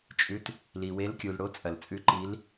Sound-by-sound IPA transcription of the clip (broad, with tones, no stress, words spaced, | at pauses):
t͡ʃʼʉ˨˦t | li˩we˨˦lkʲu˩l ɽo˨˦t͡sʼɐ˩lt͡sʼʉ˨˦ ǃi˨˦l